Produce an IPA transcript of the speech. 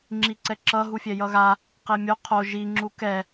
ŋ͡ǁ i ǀ ɛ ǁ ʌ ɦ u fʲ ɛ j ʌ ɣ a | q e mʲ o qʰ o ʒ i ŋ͡ǁ u k ɛ

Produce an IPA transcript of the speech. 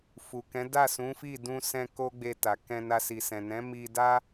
f u˨ k ɛ̃˨˦ d a˦˨ s ũ˨˦ f i˦˨ d ũ˧ s ɛ̃˧ k o˦ ɡ͡b e˧ t a˨ k ɛ̃˧ n a˧ s i˨ s ɛ̃˨ n ɛ̃˨˦ m i˧ d a˦

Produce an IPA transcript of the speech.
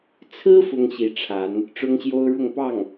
t͡sʰ ɹ̩˥ f ʊ˥ ŋ ɕ i˧˥ ʈ͡ʂʰ a˧˥ n | ʈ͡ʂ ʊ˥ ŋ ɕ j o˥ ʊ̯ ɻ ʊ˥˧ ŋ p ɑ˥˩ ŋ

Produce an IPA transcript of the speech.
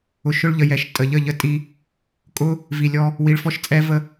ʊ˧ ʃ ʊ˦ ɭ ʎ ə˧ j ɛ˨ ʃ tʼ ə˨ ʎ ə˦˨ ʎ ə˧ tʼ i˧ | kʼ ʊ˦ | v i˨ lʲ ɔ˧ | w i˧ ɭ f ɔ˦ ʃ t͡sʼ ɛ˦ v ə˦

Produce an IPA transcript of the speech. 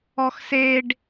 ɔ x s e ɖ

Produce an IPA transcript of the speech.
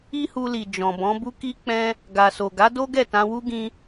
i˦ h u˧ l i˨ d͡ʒ ɔ̃˨ b ɔ̃˨˦ b u˦ k i˦ k͡p ɛ̃˦ | ɡ a˨ s o˨ ɡ a˨˦ d o˦ ɡ ɛ˦˨ t ã˧ w u˦ ɡ ĩ˦

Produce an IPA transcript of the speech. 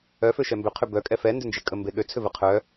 œ f ø ʃ ɛ m b ʏ qʰ ʏ b œ kʼ ɛ f ɛ n d ʏ n d͡ʒ e kʼ ə m b e ɠ ø t͡sʰ ʏ v ə qʰ œ

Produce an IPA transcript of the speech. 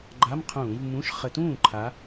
ɡ͡ǃ a˧˥˧ m qʰ ũː˧˩˧ v m ũ˧˥˧ ʃ χ ə˧˩˧ t ũː˥˩ ǃʰ a˨˦

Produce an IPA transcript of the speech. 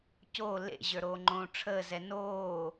c o l ḛ ʑ ə˞ ɾ oː ŋ͡ǃ õː ʈ͡ʂʰ əː z ɛ n oː

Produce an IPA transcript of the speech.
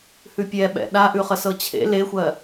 h ʉ pʲ ɛ ɓ ɛ̰ ɗ a ʔ ʉ χ ə s ɤ t͡ɕʰ ḛ l e xʷ ɜ

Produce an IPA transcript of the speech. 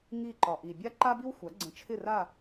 ŋ i˥˩ ǃ ɒ˩ ʔ i˩ bʲ a˥ ǃ a˥ b i˥ w xʷ a˩˥ ɡ͡ǀ ə̃˩˥ t͡ʃʰ ɪ˥˩ r a˥˩

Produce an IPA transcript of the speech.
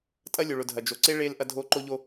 tʼ ɐ˦ lʲ o˨ ɭ ʊ˨ dʱ ɐ˨ d͡ʒ o˨ ǀ e˦ ɭ e˦ l ʔ ɐ˦ dʱ o˦ ǃ o˦ ʎ o˦

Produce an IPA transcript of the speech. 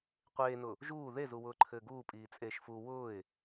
qʷ eː n ʊ | ʒ uː ð e z u w ʊː ǃʰ ɘː ɡ uː pʼ iː t͡sʼ eː ʃ f u w ʊː ɪ̯

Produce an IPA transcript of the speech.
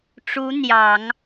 ʈ͡ʂ u˧˥ n̪ j ɑ˨˩˦ ŋ

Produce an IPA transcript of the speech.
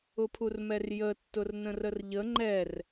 ʊ pʰ u r m ɛ r j ə tː ʊ r n ə̃ r ə r ʎ ə ŋ͡ǃ ɛ r

